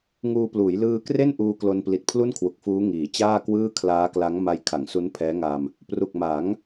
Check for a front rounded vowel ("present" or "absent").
absent